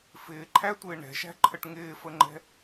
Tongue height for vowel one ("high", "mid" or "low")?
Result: high